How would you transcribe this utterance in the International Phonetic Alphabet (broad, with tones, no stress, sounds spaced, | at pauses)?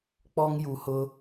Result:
k͡p ɔ˦ ŋ j u˨ h ʊ˦